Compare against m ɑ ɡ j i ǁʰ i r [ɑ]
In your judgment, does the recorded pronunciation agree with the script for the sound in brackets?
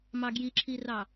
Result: yes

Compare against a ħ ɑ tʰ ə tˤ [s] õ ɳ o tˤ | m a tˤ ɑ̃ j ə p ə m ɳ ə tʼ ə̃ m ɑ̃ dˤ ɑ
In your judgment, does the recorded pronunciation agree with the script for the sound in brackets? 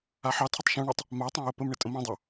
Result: no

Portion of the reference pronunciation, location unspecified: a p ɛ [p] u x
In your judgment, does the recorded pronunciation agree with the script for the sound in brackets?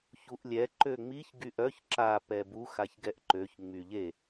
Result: no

